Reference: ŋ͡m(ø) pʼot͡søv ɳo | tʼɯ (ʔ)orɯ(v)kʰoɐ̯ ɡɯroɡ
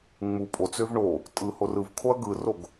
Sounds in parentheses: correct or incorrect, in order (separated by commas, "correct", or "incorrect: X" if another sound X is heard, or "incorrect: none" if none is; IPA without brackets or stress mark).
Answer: incorrect: u, incorrect: h, correct